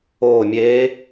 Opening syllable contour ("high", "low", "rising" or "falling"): falling